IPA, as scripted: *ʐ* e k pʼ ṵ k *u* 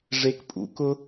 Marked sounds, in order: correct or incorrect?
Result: correct, incorrect

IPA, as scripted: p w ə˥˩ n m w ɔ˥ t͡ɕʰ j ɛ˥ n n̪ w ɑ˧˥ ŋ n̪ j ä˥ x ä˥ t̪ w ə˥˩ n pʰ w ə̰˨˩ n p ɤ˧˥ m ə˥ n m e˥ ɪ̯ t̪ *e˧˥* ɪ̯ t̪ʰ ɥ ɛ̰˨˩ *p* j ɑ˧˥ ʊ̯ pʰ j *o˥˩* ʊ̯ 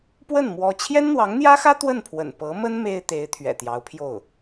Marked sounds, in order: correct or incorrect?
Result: correct, incorrect, correct

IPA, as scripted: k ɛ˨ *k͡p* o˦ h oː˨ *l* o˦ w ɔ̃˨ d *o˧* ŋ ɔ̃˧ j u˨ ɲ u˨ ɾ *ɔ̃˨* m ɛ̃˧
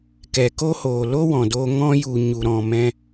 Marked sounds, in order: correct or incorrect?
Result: incorrect, correct, correct, correct

